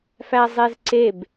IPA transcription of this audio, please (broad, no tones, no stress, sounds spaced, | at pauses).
f æ zˤ e z ǀ e b